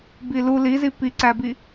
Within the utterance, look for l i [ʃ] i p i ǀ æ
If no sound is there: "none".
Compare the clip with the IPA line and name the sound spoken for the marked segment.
z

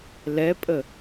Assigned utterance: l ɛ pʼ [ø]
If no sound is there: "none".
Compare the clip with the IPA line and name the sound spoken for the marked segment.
ə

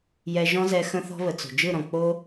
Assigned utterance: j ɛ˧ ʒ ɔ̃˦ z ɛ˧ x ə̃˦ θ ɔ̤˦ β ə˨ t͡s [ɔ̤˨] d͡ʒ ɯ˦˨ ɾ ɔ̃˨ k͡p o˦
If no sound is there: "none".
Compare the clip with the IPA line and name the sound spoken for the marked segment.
o̤˨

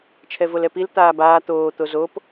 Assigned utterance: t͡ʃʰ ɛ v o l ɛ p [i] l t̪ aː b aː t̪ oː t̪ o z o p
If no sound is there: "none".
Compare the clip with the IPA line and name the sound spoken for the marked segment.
i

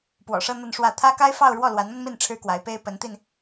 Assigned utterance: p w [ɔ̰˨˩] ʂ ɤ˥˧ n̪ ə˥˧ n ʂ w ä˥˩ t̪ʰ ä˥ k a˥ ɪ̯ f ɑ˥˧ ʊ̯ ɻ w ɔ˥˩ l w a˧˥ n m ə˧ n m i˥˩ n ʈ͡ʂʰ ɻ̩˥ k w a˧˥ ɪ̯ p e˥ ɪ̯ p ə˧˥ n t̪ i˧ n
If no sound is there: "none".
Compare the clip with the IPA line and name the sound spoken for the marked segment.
ɔ̰˨˩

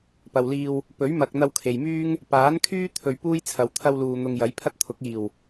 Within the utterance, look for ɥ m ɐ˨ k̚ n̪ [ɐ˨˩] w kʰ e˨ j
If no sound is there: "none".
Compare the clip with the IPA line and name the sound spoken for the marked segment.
ɐ˧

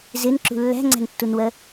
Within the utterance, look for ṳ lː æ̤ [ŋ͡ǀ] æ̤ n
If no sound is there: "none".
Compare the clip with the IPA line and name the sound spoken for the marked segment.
ŋ͡ǀ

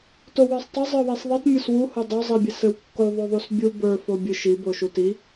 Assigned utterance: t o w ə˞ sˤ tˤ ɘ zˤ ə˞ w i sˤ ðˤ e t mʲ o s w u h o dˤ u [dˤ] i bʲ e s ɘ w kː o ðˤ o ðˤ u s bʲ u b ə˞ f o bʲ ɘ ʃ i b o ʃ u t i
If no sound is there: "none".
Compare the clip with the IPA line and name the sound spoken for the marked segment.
zˤ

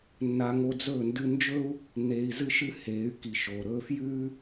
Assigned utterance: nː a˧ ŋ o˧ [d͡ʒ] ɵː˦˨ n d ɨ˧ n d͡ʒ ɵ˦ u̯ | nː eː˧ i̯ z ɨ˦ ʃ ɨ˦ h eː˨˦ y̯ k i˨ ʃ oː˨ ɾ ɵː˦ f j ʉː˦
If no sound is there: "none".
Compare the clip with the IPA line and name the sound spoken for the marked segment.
d͡z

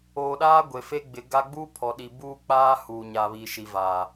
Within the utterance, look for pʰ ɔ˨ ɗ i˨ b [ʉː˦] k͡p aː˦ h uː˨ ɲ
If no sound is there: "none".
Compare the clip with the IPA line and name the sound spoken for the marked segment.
uː˦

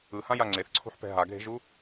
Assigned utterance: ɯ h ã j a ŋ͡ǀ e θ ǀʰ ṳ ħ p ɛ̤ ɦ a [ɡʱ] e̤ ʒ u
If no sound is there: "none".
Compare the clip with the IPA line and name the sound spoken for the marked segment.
ɡʱ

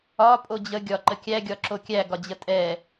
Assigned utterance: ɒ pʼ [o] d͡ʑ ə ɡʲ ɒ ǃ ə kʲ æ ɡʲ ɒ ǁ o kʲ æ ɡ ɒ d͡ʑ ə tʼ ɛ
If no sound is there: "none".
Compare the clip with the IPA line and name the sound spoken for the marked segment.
o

